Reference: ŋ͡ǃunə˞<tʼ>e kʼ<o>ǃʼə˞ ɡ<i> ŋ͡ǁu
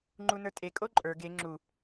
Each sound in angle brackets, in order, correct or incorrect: correct, correct, incorrect

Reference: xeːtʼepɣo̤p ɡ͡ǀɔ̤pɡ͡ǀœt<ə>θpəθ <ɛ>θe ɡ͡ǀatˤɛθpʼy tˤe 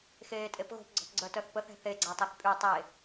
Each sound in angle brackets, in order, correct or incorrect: incorrect, incorrect

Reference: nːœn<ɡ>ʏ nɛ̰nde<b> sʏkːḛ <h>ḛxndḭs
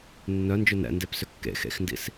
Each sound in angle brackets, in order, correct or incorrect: incorrect, incorrect, incorrect

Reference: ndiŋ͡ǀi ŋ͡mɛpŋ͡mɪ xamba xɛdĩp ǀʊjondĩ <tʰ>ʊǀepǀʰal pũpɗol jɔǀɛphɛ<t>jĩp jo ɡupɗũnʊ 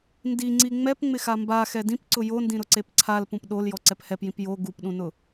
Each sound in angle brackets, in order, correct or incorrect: incorrect, incorrect

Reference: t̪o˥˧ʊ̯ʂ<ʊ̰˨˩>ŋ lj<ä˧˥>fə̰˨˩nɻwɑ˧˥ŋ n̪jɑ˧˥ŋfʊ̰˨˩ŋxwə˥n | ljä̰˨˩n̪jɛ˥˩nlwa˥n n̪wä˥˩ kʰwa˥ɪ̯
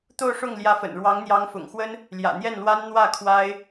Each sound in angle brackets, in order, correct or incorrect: incorrect, correct

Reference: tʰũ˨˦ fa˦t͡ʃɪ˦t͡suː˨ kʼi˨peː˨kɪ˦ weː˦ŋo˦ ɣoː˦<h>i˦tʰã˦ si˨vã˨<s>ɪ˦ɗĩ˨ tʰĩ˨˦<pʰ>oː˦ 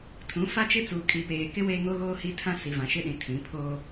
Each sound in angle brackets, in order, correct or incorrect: correct, incorrect, correct

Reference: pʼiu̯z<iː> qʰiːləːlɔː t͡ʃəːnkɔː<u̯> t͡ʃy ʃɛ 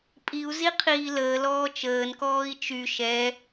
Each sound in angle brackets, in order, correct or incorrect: incorrect, incorrect

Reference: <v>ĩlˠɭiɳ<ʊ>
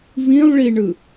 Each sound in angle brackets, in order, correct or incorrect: correct, incorrect

